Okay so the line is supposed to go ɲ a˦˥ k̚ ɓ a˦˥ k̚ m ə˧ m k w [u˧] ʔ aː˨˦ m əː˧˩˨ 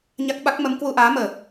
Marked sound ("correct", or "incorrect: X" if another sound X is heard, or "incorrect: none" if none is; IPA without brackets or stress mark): correct